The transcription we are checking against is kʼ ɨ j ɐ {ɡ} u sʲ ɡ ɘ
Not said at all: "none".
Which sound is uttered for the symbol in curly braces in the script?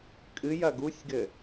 ɡ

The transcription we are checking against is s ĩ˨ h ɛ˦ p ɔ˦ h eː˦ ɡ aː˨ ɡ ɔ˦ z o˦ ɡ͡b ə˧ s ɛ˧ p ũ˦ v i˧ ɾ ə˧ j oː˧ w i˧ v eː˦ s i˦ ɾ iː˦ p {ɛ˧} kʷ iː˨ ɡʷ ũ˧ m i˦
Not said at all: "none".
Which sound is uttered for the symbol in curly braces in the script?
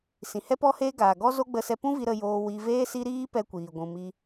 ɛ˦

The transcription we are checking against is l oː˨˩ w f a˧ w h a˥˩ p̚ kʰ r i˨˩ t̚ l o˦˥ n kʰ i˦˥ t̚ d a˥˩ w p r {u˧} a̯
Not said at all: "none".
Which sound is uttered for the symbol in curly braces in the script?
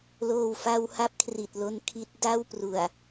u˨˩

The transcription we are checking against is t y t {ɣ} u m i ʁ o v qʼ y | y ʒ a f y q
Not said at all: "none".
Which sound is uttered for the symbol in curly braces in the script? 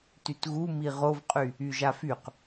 ɣ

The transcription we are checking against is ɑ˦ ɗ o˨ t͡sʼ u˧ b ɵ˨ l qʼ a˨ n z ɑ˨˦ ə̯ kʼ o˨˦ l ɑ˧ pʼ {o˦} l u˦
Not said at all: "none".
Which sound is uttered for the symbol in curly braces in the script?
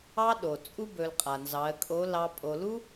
o˧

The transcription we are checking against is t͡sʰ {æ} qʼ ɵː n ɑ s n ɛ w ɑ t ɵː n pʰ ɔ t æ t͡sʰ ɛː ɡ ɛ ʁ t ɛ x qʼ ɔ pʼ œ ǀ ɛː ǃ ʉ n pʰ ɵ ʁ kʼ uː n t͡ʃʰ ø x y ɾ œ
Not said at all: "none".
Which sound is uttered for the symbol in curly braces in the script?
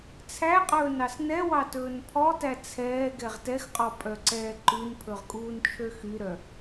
æ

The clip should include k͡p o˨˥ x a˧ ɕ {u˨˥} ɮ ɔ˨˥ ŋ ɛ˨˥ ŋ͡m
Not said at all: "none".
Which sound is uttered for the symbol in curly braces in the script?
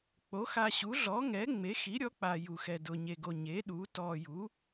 u˨˥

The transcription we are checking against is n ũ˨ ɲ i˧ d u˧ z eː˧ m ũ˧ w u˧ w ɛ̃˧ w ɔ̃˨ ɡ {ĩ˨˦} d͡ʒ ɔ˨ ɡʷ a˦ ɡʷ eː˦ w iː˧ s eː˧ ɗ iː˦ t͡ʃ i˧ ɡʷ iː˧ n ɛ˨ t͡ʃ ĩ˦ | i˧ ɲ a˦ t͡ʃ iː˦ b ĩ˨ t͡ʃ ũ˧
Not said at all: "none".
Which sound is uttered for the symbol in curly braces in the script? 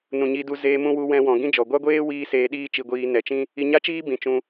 ĩ˦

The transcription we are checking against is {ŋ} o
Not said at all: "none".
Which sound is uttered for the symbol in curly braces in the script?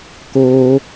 k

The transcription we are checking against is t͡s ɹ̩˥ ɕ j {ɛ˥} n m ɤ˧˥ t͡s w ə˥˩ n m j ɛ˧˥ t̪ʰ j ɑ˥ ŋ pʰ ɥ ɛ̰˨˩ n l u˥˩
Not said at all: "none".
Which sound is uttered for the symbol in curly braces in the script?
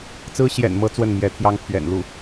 ɛ̰˨˩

